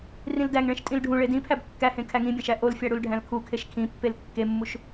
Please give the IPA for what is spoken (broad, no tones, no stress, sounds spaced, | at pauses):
r ĩ l d æ ŋ ɭ ẽ ʃ tʼ ĩ l ɖʱ ũ ɭ e d ĩ pʰ æ b kː æ h ẽ kʰ æ ŋ ĩ bʲ æ̃ ʃ æ ʔ o l fʲ æ ɽ u l ɖʱ æ̃ l kʰ u kʰ e ʃ kʰ ĩ pː e l kː e mː u ʃ